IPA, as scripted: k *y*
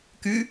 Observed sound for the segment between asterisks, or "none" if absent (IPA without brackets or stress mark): y